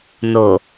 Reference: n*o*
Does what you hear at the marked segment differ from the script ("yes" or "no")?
no